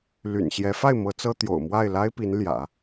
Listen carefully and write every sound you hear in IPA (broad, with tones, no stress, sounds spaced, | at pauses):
l y̰˨˩ n ɕ j ɛ˧˥ f a˥˩ ɪ̯ m ɤ˧˥ t͡s ɤ˥ t̪ j o̰˨˩ ʊ̯ m w a˥˩ ɪ̯ l a˥ ɪ̯ p i˧˥ n l j ä̰˨˩˦